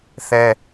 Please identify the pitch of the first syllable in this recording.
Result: high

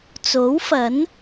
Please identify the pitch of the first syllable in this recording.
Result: rising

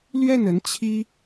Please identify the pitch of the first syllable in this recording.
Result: falling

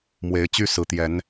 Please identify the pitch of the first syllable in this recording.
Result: rising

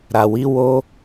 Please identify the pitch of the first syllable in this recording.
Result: low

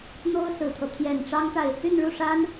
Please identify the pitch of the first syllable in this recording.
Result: high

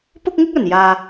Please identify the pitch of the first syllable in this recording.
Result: high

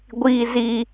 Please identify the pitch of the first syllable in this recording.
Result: high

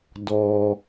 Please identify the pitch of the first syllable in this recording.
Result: low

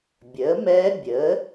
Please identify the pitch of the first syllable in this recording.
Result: rising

